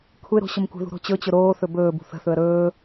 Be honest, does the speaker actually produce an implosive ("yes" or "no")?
no